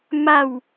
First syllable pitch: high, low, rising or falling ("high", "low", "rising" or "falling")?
falling